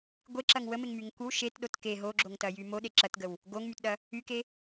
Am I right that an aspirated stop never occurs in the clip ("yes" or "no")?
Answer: yes